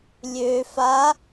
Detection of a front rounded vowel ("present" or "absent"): present